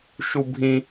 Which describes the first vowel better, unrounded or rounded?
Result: rounded